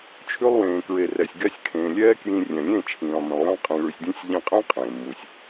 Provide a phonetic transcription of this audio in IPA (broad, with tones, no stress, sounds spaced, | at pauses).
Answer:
t͡ʃʰ ʉ˧ lˠ w ẽː˨ k ɹ e˨ r ɛ˨ sʲ ɡ ɛ˧ sʲ kʰ ẽː˨ lʲ ɛː˦ k j ĩ˧ rʲ ɛ̃˨ lʲ ẽ˦˨ t͡ʃʰ ĩː˨ lˠ m ĩ˨ lˠ j ɛ̃˦ lˠ qʼ ĩ˧ ɭ ʉ˧ sʲ dʲ ũ˦ sʲ ʎ ĩ˧ qʼ ẽ˦ qʼ ẽː˨ m u˧ sʲ